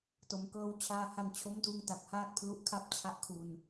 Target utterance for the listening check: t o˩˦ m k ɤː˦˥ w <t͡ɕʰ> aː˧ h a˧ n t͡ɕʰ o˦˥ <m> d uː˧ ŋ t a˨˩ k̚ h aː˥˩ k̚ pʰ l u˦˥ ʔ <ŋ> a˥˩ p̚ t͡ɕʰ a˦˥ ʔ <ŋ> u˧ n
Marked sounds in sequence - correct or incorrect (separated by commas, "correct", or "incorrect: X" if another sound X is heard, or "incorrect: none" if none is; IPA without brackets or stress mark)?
correct, correct, incorrect: kʰ, incorrect: kʰ